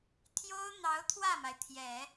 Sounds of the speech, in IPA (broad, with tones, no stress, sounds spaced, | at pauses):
t̪ʰ j o˥ ʊ̯ n̪ ɑ˧˥ ʊ̯ t̪ʰ w ä˥˩ m a˩ ɪ̯ t̪ʰ j ɛ˨˩˦